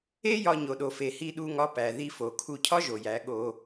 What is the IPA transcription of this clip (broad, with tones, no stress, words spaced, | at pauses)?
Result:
e˦jɒ˧ ɲo˨ɗo˨fe˨ hi˧ɗu˧ŋɒ˧pæ˨ ði˧fo˨ kʰu˧cʰɒ˦ʒo˨jæ˨˦ ɠo˧